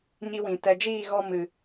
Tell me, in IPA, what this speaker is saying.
ɲ i˧ w ĩ˨ t ɛ˨ d͡ʒ iː˦˨ ɣ ɔ˧ m ɨ˨

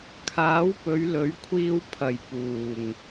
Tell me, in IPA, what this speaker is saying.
kʰ aː˨˥ w p ɵ˨˧ ɥ l ɵ˨˥ ɥ kʷʰ iː˧ w pʰ ɐ˨˩ j p uː˨˩ ŋ

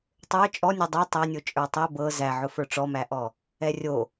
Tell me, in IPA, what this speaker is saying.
tˤ ə˞ t͡ʃʼ ɔ nʲ ə˞ dˤ æ tˤ æ nʲ o t͡ʃʼ ə˞ tˤ ɛ b ɤ z æ ʕ ʊ f ə˞ ʈ͡ʂ ɔ m æ ʔ ɔ | ɛ rʲ o

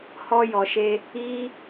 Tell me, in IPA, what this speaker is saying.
h ɔ˦ j ɔ˧ ʃ e˦ | i˦

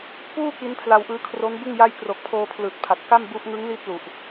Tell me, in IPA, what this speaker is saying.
p uː˥˩ k i˦˥ n pʰ l a˧ w ʔ ɯː˦˥ kʰ r o˦˥ n b ɯ˥˩ ŋ j a˥˩ j k r o˨˩ k̚ pʰ oː˧ pʰ l ɯː˨˩ t̚ pʰ a˨˩ t̚ k a˥˩ m b u˦˥ ʔ ŋ ɯ˦˥ ŋ l i˦˥ t̚ l u˨˩ ʔ

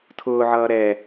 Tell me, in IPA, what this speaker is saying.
tʰ ʊː ʕ ʌː ɾ ɛ

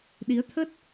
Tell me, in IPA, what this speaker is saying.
ɗ i˨˦ ə̯ t̪ʰ ə˦˥ t̚

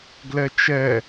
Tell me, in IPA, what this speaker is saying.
ɡ l ɛ t͡ʃ ɛ

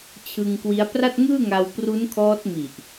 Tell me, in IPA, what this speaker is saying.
t͡ɕʰ ɯ˧ ŋ k w i˦˥ a̯ p r a˥˩ t̚ ŋ ɯː˥˩ ŋ a˧ w p r u˦˥ n kʰ ɔː˦˥ t̚ m i˨˩ ʔ

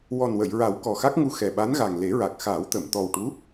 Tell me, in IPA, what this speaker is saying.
w ɔ˨˩ n w ə˨˩˨ j ɹ a˨˩˦ w k ɔ˨˩ x a˦˥ k̚ ŋ u˧ x ɛ˨˩ ɓ a˧˥ n ɣ a˨˩ ŋ l e˨˩˦ ɹ a˨˩ k̚ x aː˨˩˦ w t̪ ə˨˩˨ m t̪ ɔ˨˩ w ʈ u˧˥

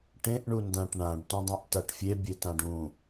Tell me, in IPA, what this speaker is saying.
ʈ ẽ ʔ ɳ u n d ã ʈ ɳ ã ɖ t ũ dˤ ẽ ʔ t a ʈ fʲ e bʲ e t ã ɖ ũ

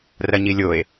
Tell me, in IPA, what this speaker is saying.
r ɐ ɲ i lʲ o e̯

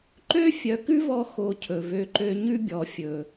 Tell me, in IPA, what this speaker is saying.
ǃ ø˦ fʲ œ˨ k ʉ˦ v ɔ˧ x o˧ cʰ ɵ˨ v ø˨ ǃ ø˧ ɲ ʉ˦ bʲ ɔ˨ fʲ ɵː˨

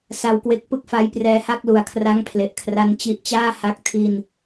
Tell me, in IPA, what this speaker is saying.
s a˧ w k w e˦˥ k̚ p ɯ˥˩ k̚ f a˦˥ j p r ɛː˧ h a˥˩ k̚ l u˨˩ a̯ kʰ r a˦˥ ŋ pʰ l e˨˩ ʔ kʰ r a˦˥ n t͡ɕ i˦˥ ʔ t͡ɕ aː˥˩ h a˦˥ k̚ tʰ i˧ n

